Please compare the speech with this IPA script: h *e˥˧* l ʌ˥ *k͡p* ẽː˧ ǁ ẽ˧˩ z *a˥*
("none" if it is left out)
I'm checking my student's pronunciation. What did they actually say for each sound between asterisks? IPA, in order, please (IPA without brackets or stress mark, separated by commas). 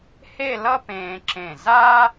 e˥˧, p, a˥